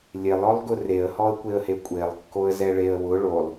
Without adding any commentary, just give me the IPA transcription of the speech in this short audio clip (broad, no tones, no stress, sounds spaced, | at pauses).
lʲ e lˠ ɔ lˠ ɡ ʊ r e ə̯ h ɔ ə̯ kʷ e ə̯ h e kʷʼ e lˠ kː o ə̯ z ɛ ɭ e ə̯ w ʊ ɭ o lˠ